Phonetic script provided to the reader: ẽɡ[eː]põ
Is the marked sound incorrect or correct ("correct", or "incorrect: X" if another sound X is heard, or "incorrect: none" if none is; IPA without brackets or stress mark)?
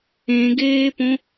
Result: correct